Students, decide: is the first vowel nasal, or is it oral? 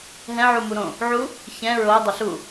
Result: nasal